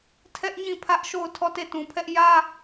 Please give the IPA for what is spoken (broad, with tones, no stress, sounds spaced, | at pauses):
tʰ ɛ˦ ʔ ɲ ĩ˦˨ pʰ ä˦ ʔ ʃ o˦˨ ʊ̯ tʰ ɔ˦˨ t e˦˨ t ũ˨ pʰ ɛ˦ ʔ j ä˦